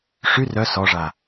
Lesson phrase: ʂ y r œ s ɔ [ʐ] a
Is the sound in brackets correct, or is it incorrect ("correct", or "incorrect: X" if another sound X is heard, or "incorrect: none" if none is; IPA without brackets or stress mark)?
correct